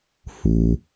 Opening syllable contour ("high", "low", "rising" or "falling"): low